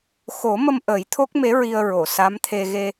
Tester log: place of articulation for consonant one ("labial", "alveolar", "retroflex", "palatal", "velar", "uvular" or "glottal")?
velar